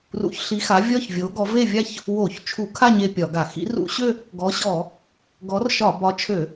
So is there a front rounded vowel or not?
yes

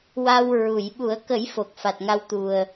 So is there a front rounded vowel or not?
no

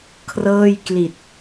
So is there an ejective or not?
no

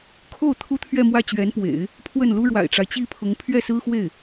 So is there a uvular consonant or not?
no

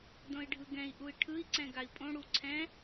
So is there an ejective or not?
yes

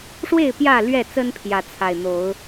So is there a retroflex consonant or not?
yes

